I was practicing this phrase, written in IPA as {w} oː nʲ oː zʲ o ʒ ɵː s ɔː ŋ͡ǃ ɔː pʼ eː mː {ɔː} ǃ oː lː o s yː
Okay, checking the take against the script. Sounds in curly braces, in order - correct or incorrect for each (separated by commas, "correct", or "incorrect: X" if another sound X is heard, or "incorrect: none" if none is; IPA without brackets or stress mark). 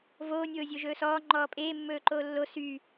incorrect: v, incorrect: ɵː